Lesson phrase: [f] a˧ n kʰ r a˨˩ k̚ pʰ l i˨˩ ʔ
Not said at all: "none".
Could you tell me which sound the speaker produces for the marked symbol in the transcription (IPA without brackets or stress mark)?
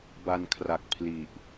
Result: b